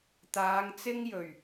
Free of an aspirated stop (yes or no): yes